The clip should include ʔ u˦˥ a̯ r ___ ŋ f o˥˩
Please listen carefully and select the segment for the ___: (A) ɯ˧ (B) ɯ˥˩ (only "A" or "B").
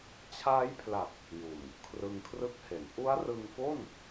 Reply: A